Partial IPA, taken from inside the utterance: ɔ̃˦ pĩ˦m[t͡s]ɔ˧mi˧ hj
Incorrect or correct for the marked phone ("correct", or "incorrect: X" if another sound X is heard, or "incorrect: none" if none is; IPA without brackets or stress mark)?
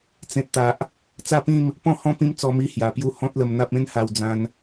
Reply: correct